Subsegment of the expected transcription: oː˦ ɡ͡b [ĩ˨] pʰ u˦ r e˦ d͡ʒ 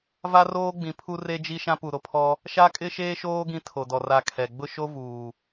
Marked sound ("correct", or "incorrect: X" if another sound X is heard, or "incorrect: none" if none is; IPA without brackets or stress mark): correct